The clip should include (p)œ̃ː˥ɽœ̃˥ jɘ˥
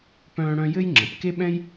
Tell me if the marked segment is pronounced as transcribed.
yes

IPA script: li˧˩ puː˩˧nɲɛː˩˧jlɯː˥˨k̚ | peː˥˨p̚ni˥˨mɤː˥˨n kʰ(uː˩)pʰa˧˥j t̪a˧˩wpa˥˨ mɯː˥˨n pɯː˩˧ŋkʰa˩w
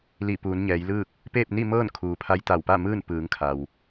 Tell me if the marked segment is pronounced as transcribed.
yes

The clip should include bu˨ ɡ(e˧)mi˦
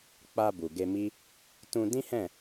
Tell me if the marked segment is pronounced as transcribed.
yes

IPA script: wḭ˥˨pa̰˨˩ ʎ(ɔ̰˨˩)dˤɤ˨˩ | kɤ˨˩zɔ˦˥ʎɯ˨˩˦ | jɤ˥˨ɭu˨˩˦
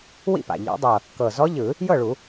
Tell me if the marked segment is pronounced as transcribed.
no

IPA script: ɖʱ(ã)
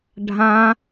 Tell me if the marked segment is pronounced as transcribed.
yes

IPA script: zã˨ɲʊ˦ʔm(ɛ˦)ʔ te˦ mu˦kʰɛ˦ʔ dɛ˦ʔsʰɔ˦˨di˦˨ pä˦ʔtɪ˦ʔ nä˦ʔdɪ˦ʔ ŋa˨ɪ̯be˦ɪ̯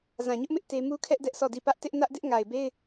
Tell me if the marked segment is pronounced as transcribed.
no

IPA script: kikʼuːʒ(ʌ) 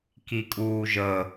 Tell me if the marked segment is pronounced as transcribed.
no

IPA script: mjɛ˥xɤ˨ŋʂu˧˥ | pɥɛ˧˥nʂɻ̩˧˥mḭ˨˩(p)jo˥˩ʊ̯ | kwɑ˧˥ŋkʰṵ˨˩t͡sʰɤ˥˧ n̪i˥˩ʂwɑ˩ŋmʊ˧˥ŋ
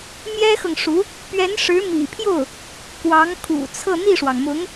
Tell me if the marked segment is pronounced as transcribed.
no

